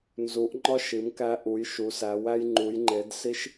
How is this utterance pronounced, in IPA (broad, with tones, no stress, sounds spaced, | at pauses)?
n z u˩˧ ʔ ŋ͡ǃ ɒ˧ ʃ i˩˧ m k æ˧ ʔ u˩˧ j ʃ u˩˧ s æ˩˧ w æ˧ j ŋ͡ǃ u˩˧ j ŋ͡ǃ e˩˧ d s i˧ ʃ